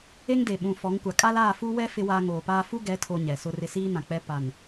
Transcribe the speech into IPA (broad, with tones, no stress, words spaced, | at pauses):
e˦ŋde˨ɓũ˨ fɔ˨˦ŋkʷa˨ kʼa˦laː˦˨fu˦ wɛ˦ fɪ˦waː˦ ŋoː˨paː˦ fu˦ɡɛ˨˦tʰo˨ ɲɛ˨sʊ˦rɪ˦ siː˦nã˨k͡pɛ˦ pa˨n